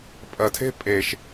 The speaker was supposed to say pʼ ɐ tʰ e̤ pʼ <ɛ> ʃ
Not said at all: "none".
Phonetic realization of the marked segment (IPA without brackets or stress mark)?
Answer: e